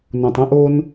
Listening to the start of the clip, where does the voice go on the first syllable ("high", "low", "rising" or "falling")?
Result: low